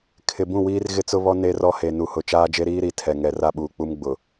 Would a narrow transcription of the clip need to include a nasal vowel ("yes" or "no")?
yes